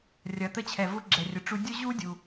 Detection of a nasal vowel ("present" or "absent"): absent